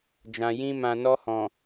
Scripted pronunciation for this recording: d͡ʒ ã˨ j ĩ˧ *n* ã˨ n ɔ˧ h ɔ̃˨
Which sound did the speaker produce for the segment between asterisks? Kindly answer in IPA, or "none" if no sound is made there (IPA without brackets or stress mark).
m